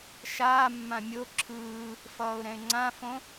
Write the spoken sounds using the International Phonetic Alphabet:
ʃaːmːã mʲo ǁʰɯː | fʌːʊ̯ɾɛ̃ɪ̯ŋ͡ǀãfõ

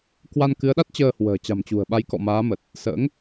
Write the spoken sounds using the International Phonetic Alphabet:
kwa˧nkɨ˨˦ə̯ɗa˦˥t̚ t͡ɕəː˧hwə̤ː˨˩ t͡ɕa̤˨˩mt͡ɕṳ˨˩ə̯ ɓa˨˦jkɔ̰˧˨maː˨˦mə˨˩t̚ | sə̰ː˧˥ŋ

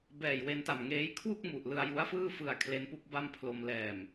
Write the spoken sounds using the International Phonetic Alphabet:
bɛː˨˩jwe˧nta˨˩mŋeː˦˥j kʰwu˥˩k̚mu˨˩ʔ lɯ˧a̯ju˦˥a̯fɯː˥˩fɯ˧a̯ kʰle˦˥npu˦˥k̚ ba˥˩mpʰlo˧m lɛː˨˩m

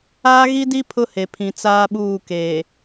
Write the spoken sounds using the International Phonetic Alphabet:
aː˦ɣi˦di˦ pʰʊ˦he˨ pʰĩ˨t͡saː˦ɓuː˦˨keː˨

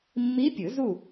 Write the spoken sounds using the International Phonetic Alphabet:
mːi˧˥ pʲɯ˨˩˦zu˥˨

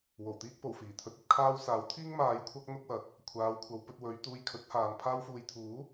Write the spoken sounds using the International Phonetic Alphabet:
wo˨˩wt̪iː˥k̚po˨˩w fiː˨˩t̪ʰɵ˧t̚ ɐ˨˥t̚kʰaː˥wsaː˨˥w t̪ʰiː˥ŋmaː˨˧j kʷʰɐ˥k̚ n̪ʊ˥k̚wɐ˨˥t̚ | kʷʰaː˨˧wkʷʰɐ˨˧wpɵ˧t̚wɵ˨˧ɥ t̪uː˧j kʰɵ˨˥t̚haː˨n pʰaː˧wfuː˨jt̪ʰuː˨˥

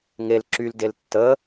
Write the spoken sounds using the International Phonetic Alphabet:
ŋel ǁyldel tːə

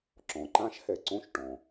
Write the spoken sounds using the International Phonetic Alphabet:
ǁɔ̃˩ǃã˦˥ʃhɛ˩ ǀõ˦˥ʃʈɔ̃˩

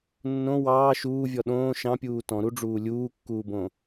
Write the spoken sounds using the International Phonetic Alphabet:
nːõ wɑː ʃuːvʲɔ ɗõː ʃɑ̃pʲuː tɔ̃ɾuɖ͡ʐuː lʲuːkːuːbõ

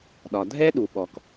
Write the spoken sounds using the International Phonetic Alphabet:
ɗɒ˩dʱɛ˥ɗu˩ɓɔ˩k

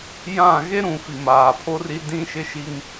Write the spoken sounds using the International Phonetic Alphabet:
jã˦˨ ɣe˦ɾũ˨ fi˨maː˨pʰo˦ri˦ dĩ˦ʃɪ˦ʃi˦ŋ

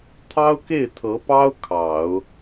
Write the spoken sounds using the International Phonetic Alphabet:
t̪ʰɑ˥ʊ̯ke˥˩ɪ̯t̪ʰɤ˧˥pɑ˥ʊ̯ kʰɑ˨˩˦ʊ̯

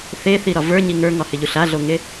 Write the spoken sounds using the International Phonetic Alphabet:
θeθiɾɒ və˞ɲi ŋə˞ŋɒhɪʎuɬ aɮoŋe

